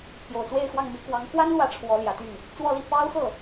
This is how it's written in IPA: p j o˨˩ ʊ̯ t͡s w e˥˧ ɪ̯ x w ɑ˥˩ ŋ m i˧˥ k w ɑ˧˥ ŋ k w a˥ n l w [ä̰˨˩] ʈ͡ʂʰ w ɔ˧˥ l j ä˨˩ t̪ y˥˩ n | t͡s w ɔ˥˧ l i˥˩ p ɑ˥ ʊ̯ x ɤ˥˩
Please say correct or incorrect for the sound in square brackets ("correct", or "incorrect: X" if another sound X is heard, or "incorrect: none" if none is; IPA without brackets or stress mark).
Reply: incorrect: ä˧˥